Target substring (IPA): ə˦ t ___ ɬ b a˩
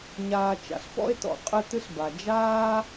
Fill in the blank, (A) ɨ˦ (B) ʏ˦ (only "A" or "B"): A